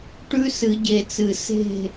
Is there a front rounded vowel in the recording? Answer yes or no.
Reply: no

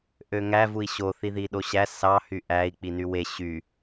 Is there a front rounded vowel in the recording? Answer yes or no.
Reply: yes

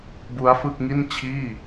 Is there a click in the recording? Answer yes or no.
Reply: no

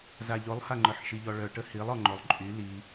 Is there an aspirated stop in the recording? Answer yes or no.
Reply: no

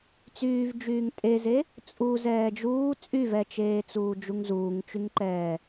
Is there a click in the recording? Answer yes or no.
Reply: yes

